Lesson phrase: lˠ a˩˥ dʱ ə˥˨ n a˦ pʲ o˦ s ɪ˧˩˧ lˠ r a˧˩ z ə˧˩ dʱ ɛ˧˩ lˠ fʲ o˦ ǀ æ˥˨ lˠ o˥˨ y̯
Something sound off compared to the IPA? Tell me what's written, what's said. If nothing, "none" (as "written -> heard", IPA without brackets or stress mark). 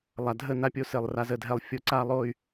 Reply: æ˥˨ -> a˥˨